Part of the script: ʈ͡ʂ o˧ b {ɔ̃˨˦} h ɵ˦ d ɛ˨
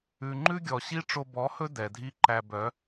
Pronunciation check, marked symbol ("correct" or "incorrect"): incorrect